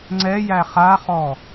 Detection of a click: present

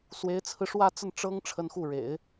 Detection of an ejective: absent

